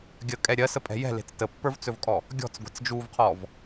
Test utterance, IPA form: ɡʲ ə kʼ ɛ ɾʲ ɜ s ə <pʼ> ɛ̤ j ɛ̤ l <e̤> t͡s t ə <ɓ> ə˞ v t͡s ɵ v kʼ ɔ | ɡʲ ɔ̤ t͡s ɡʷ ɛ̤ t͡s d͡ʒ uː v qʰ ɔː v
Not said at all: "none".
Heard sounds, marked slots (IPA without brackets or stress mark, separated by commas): pʼ, e̤, pː